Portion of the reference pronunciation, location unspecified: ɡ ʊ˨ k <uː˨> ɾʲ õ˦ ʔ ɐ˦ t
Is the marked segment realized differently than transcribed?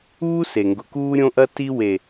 yes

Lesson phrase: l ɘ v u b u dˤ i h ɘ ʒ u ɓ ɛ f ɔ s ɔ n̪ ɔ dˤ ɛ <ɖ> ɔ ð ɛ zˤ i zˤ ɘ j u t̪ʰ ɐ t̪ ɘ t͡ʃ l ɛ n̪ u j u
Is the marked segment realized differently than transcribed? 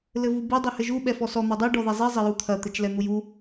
no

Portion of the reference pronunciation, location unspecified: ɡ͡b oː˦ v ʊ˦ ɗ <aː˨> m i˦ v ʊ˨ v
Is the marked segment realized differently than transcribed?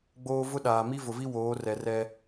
no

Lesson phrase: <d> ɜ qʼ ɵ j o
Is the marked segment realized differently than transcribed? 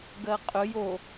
yes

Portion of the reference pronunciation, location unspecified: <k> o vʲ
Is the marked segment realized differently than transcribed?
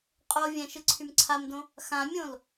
yes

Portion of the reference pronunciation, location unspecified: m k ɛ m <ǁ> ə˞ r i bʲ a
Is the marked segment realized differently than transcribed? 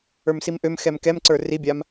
yes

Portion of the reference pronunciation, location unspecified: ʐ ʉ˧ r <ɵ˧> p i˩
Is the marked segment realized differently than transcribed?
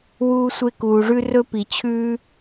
no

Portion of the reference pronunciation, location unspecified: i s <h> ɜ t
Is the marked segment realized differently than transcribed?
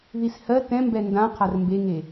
no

